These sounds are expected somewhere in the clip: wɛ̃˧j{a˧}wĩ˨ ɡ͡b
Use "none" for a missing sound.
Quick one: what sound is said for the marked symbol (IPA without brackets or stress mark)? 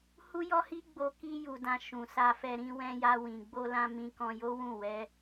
a˧